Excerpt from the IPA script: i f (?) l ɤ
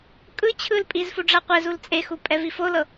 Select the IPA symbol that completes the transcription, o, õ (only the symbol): o